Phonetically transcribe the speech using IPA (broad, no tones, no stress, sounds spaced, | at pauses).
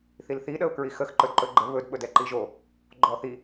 θ i l θ i ɗ ə ʊ̯ k ɹ i x ə x ǃ ɵ d ǃ ɵ ɡ͡ǃ ə β ɵ d ɓ ɵ d ɛ ǃ i ʒ o | ɡ͡ǃ ɔ θ i